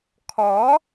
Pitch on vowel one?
rising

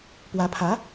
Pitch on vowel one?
rising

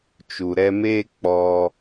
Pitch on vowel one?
low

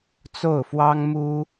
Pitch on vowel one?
falling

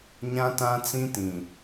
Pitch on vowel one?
high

